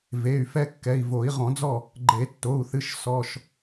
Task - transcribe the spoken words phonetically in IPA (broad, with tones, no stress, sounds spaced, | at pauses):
v e˩˧˩ y̯ f ɛ˦ kː ɛ˩˧˩ i̯ v o˨˩˦ i̯ ʁ ɔ̃˨˩˦ d͡z ɔ˥˩ | ɡ͡ǃ e˨˩˦ tː o˩˧˩ u̯ θ ɨ˩˧˩ ʃ s ɔ˩˧˩ ʃ